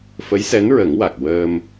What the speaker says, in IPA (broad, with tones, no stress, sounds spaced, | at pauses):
f ə˧˥ j s ɛ˧˥ n ɹ ə˨˩˦ ŋ w a˨˩ k̚ w əː˧ m